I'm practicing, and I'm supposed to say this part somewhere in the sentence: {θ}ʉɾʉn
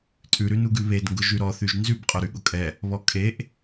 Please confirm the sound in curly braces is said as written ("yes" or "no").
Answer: no